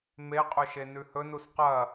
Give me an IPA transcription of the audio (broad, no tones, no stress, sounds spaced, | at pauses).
m e qʼ ɵ ʃ e n ʉ h ɵ n u s q ɐ